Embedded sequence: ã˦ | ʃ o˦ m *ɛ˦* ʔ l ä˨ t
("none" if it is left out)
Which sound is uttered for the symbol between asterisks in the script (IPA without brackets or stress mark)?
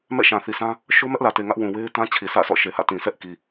ɛ˦